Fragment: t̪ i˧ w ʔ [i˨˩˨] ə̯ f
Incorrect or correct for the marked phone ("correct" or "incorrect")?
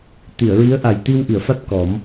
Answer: correct